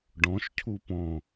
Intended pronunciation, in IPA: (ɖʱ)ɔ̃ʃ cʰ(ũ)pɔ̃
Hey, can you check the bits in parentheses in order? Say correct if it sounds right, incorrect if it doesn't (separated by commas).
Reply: incorrect, incorrect